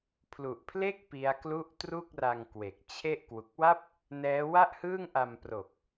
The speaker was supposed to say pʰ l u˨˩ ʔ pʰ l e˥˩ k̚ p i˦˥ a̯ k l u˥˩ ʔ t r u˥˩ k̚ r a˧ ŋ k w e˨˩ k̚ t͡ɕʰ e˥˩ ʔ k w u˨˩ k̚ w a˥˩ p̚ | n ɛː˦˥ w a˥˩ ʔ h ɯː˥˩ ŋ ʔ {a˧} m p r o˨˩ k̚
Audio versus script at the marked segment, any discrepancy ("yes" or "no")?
no